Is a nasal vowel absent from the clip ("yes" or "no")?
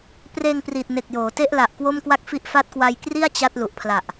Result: yes